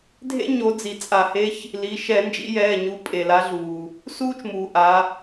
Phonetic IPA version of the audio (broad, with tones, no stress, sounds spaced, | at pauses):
dʱ ḛ˥ ɲ o˨˦ d͡z i˩ t͡sʼ a˧˩˧ h e˧˥˧ ç | l i˩˧˩ ʃ ɛ˧˩˧ n d͡ʒ ḭ˨˦ j ɛː˩˧˩ ɲ u˨˦ pʼ e˩ l a˨˦ ɮ uː˩ | s uː˥ t͡ʃ m uː˩ ʔ a˨˦